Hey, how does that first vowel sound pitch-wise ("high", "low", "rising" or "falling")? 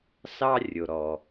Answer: high